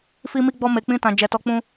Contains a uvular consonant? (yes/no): no